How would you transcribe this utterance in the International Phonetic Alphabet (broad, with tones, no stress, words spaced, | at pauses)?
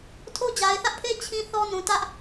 tʰo˦d͡ʑa˨ɪ̯θä˦ʔpʰe˦ t͡ɕʰĩ˦θɔ˦ nũ˨tä˦ʔ